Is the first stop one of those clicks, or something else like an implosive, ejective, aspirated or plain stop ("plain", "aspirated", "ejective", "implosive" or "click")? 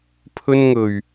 aspirated